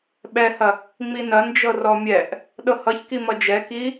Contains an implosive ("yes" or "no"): yes